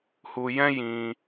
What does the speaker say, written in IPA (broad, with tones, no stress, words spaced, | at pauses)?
hu˧jɛ̃˦ jĩ˧